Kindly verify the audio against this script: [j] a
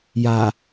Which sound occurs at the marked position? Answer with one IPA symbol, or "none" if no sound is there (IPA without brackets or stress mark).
j